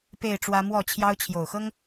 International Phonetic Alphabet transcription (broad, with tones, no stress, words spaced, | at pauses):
pe˥˨ɪ̯ʈ͡ʂwä˦ mwɔ˥˨t͡ɕʰjɑ˦ʊ̯ t͡ɕʰjo˨˩ʊ̯xɤ˦ŋ